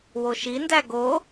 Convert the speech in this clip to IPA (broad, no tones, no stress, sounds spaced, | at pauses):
w o ʃ i n d æ ɡ o